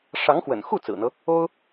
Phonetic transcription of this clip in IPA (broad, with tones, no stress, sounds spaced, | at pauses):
ʂ ɑ˧˥ ŋ x w ə̰˨˩ n x u˥˩ t͡s ɹ̩˨˩ n̪ ɤ˦ | o˥ ʊ̯